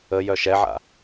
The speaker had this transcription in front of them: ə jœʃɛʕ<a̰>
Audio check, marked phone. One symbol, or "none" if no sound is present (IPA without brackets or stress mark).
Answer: a̰